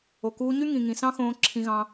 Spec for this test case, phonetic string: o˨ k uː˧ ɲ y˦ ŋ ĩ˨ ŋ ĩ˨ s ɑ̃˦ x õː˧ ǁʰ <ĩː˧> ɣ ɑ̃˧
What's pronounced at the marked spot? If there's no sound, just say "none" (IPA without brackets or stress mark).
ĩ˧